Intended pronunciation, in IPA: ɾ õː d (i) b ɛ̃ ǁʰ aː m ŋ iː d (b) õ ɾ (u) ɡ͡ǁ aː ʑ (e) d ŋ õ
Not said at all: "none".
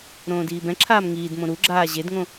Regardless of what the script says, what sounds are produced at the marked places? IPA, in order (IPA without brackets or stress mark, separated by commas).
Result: iː, m, u, e